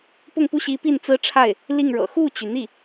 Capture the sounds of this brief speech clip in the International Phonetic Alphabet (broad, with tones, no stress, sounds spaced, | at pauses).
p ʊ˥˧ ŋ p u˥˩ ɕ i˧˥ p i˥˩ n t͡s ɹ̩˥ ʈ͡ʂʰ a˥˩ ɪ̯ | l i˥˩ ŋ ɻ ɤ̰˨˩ x u˥˩ t͡ɕ y˩ n̪ i˥˩